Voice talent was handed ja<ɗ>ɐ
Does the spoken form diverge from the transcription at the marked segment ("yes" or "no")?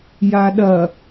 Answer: no